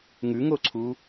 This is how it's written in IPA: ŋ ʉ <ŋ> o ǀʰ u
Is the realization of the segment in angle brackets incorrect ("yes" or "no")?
no